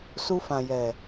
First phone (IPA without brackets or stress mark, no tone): s